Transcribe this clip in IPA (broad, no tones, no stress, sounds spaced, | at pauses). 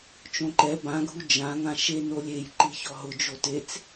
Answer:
t͡ʃ õ ǃ ɛ b ã ɡʱ u d͡ʒ ã ŋ ã ʃ e n o lʲ e j ǃ i ç ɔ ɦ ʊ d͡ʒ o t e t͡s